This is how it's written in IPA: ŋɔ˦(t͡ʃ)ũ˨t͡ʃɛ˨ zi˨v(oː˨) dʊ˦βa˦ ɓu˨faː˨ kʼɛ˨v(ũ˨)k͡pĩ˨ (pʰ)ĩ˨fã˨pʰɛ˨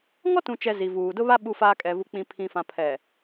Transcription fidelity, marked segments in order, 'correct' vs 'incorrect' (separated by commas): incorrect, incorrect, incorrect, correct